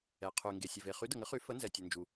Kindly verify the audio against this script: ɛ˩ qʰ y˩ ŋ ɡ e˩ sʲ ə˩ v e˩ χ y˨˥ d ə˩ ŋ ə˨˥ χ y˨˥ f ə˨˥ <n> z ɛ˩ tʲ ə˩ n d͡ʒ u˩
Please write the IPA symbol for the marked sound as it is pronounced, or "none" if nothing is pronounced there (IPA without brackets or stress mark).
n